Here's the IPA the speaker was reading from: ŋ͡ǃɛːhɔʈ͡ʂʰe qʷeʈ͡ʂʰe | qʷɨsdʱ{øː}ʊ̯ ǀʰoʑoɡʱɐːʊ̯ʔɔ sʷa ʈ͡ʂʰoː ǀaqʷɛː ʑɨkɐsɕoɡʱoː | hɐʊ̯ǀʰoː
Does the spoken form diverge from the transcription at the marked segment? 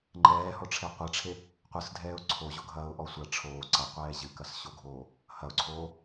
yes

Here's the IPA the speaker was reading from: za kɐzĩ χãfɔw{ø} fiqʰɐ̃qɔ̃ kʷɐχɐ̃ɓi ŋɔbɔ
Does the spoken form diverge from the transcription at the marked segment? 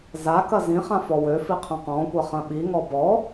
no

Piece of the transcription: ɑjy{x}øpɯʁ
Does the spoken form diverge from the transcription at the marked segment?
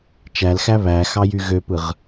yes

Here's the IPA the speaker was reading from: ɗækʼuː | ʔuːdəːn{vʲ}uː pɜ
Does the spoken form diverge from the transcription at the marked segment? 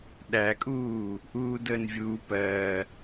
no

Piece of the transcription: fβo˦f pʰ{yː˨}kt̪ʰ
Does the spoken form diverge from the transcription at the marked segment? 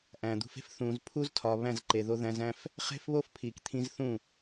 yes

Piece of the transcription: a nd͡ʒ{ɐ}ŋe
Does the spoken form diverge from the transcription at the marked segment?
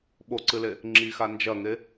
no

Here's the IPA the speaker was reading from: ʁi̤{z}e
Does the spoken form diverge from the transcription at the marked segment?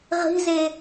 no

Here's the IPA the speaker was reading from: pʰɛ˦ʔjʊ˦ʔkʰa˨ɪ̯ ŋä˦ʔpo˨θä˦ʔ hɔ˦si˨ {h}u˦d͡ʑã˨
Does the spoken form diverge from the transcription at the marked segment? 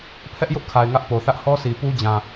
yes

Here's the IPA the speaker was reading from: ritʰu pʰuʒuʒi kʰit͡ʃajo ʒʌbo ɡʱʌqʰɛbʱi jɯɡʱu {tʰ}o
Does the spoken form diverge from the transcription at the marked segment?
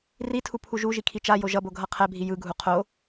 yes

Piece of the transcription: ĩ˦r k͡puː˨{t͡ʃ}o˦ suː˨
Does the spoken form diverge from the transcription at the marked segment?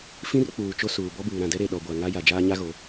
no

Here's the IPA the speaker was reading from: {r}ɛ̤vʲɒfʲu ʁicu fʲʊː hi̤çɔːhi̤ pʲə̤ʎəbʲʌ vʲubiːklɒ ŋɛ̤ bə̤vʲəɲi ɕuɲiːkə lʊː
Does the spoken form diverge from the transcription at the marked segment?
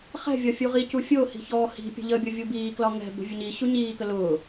yes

